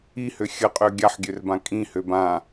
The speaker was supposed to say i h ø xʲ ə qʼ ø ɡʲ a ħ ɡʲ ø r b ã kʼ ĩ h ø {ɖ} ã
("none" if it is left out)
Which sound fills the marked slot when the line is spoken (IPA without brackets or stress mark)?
b